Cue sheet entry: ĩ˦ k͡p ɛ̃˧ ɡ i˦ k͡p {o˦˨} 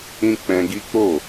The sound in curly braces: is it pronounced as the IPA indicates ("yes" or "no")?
yes